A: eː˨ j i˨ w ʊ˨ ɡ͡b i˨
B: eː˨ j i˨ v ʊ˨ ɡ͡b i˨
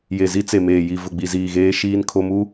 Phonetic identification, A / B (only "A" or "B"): B